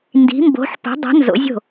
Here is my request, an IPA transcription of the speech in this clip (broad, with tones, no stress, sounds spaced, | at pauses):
n d i̤˨˥ m b o̤˨˥ ħ p o̤˨˥ dˤ ə̤˨˥ n z o̰˨˥ zʲ o̤˥˩